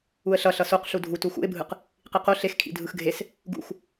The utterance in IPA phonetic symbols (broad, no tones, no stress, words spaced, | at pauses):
uə̯ɬʌ ɬʌsoq ɬudʱu tuxṵɪ̯bʱɯq | qiqo ɬexkʰḭ dʱɯxɡʱes | ɡṵx